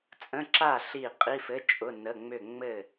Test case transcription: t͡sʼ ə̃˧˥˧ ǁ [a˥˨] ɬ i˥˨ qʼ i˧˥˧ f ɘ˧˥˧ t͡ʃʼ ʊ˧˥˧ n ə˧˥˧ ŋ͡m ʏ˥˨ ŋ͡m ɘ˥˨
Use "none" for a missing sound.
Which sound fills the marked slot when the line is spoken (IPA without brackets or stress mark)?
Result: a˥˨